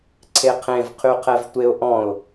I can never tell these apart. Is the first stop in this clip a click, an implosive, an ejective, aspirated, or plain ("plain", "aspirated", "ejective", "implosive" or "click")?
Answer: click